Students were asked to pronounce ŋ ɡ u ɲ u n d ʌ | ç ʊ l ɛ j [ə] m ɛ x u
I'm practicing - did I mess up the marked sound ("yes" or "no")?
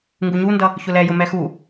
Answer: yes